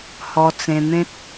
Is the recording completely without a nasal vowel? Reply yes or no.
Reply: no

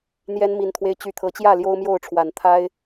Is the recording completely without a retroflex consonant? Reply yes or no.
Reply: no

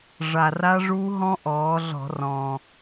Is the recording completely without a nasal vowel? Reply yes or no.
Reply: no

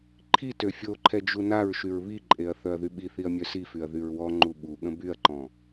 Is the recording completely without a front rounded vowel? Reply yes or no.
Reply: no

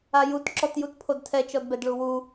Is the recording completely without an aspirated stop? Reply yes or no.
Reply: no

